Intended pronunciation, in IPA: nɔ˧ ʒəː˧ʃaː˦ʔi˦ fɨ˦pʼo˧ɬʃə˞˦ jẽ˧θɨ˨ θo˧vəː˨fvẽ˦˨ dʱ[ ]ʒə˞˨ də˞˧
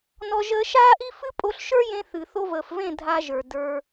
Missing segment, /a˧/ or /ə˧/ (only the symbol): a˧